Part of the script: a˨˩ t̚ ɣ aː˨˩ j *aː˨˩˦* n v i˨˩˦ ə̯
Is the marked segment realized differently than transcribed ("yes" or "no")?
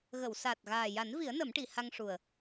yes